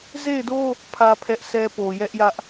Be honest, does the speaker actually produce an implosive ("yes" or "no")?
no